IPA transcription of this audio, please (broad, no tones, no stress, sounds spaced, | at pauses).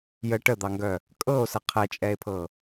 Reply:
j ə ʈ ə d̪ ɑ ŋ ɡ œ | kʼ ɤ o̯ s ə qʰ ɛ t͡ʃʼ ɛ e̯ pʰ ɤ